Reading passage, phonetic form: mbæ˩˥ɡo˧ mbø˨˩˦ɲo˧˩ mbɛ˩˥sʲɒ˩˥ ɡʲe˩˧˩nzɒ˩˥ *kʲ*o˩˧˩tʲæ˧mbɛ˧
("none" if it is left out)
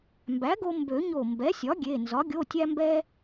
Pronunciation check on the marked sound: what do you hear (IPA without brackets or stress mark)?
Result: ɡʲ